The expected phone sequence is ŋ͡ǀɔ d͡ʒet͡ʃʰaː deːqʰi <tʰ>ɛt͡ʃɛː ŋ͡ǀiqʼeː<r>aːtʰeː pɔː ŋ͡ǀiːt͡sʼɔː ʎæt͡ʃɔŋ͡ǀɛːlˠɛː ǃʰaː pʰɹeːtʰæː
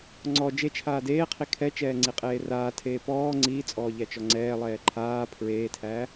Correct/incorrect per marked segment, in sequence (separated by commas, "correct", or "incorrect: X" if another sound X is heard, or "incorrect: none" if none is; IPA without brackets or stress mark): incorrect: kʰ, correct